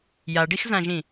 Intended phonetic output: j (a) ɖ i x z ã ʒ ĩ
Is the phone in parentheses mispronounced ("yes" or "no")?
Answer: no